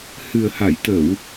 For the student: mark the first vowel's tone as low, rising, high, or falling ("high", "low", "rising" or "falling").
low